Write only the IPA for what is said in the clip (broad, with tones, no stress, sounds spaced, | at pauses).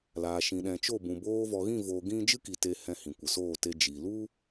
l aː˨ ʃ ĩ˨ ɗ ɛ̃˨ t͡ʃ o˦˨ b ũ˨ b oː˧ v ɔ˨ ɣ ĩ˦˨ v oː˨ ɡ ĩ˦ d͡ʒ ɨ˦ k i˨ t e˧ h ɛ̃˧ h ĩ˨ kʷ ə˨ s oː˦˨ t e˧ d͡ʒ i˨ l u˦